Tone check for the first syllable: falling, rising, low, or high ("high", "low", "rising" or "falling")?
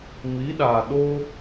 rising